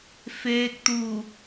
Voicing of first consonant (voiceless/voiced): voiceless